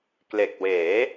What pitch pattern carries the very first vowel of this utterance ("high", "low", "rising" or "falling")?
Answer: low